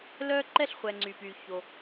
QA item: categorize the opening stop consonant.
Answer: click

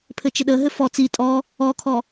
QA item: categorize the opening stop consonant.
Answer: aspirated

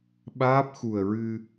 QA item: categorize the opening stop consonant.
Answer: implosive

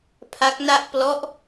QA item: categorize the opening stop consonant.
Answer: aspirated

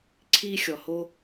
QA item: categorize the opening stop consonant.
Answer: click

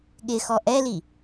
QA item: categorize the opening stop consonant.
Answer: implosive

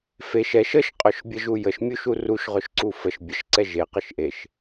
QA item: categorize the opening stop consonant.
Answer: ejective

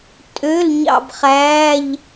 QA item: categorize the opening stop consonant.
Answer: ejective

